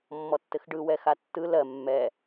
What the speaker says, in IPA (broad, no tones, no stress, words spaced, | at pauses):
mːɔtːɘxɖɯ wɛxatːɯ lɜ mːɛ